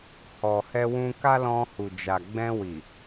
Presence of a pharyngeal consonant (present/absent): absent